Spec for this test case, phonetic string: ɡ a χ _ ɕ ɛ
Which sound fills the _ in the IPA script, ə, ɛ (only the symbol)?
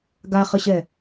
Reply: ə